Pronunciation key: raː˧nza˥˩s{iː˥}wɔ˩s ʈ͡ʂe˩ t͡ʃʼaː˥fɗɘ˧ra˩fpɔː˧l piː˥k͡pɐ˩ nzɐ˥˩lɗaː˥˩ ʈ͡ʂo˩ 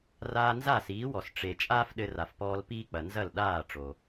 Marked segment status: incorrect: iː˩˥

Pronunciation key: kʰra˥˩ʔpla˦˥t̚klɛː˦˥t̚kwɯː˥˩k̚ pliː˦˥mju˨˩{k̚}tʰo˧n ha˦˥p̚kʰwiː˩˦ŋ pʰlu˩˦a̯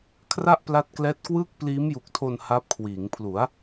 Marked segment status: correct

